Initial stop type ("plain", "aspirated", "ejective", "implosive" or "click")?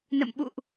implosive